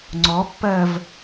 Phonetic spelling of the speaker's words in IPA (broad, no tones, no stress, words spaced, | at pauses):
ŋ͡ǀɔpːɜv